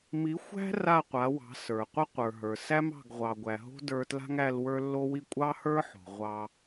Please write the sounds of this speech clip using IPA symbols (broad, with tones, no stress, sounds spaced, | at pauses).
m i˨˦ xʷ æ̤˦ r a˦˨ qʷ a˨˦ w ɑ̤˨˦ s ə˞˨ qʷ ʌ˦ qʷ ə˞˨ ɦ ə˞˨ s æ˦ m ɑ̤˦˨ ɡ ʁʷ ɑ˨ ɡʷ æ˨ ɦ o̤˦ d ə˞˧ t l a̤˦ ŋ æ˧ l w ə˞˦ lː o˦ w i˦ kʷʼ ɑ˦ h ə˞˦ ħ o̤˨ ʁʷ ɑ˧